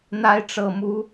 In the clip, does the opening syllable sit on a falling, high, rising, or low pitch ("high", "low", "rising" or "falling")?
rising